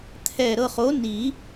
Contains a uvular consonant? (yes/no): yes